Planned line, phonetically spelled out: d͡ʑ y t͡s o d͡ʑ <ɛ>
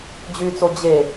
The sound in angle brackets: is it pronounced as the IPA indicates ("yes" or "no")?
no